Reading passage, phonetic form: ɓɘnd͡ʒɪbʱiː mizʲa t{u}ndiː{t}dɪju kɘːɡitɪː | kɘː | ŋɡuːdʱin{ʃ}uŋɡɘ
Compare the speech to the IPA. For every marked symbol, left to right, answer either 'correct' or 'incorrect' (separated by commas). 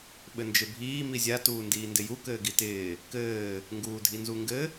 incorrect, incorrect, incorrect